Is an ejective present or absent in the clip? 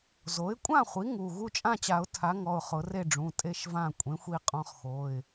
present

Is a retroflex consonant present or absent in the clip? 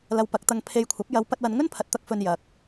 absent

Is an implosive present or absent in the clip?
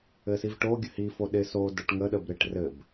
present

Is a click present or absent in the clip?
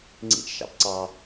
present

